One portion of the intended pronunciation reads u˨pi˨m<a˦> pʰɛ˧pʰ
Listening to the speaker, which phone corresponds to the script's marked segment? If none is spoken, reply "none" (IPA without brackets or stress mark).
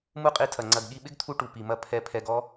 ɐ˦